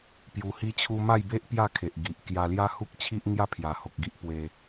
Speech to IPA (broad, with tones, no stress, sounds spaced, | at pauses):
p j u˧ h i˦ t͡ɕʰ u˦ m a˥˧ j b e˦ ʔ p j a˥˧ kʰ e˨ ʔ ɡ i˨ ʔ k j a˧ l j a˦ h u˦ k̚ t͡ɕʰ i˦ ʔ ŋ j a˥˧ pʰ j a˨˩ h o˨ k̚ ɡ i˦ ʔ p w e˧